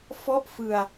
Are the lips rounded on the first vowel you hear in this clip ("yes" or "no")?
yes